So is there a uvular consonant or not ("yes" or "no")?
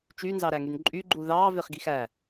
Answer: yes